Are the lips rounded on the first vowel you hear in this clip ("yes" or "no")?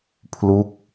yes